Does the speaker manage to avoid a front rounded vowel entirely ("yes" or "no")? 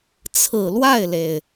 yes